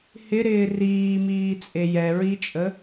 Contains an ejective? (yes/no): yes